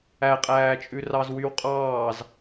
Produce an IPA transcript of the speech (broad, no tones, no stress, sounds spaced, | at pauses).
æ qʼ æː t͡ʃʼ ʉ r ɑ z w y w qʼ ɑː z